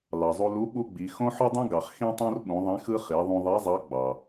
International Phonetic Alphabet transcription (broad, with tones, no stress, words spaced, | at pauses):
lɑ˩zˤu˧ lu˧˥ ɓu˥ɡ͡bi˩˧ xõ˥ ħɯ˥dˤũ˥ ɡɑ˩χxĩ˥tˤõ˥rɓũ˩˧ ðˤĩ˧˥xɯ˥ χi˩˧ ðˤũ˧ðˤi˧˥zˤɑ˧˥ ɡ͡bɑ˩